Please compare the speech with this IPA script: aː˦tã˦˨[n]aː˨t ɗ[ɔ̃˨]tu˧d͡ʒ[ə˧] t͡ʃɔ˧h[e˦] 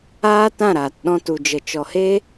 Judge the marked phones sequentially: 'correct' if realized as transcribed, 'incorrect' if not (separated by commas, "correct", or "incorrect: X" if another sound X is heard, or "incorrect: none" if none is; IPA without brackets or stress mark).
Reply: incorrect: ɾ, incorrect: ɔ̃˦, correct, correct